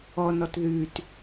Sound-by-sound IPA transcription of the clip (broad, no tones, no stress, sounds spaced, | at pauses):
ɔ n ɔ t ð ʉ t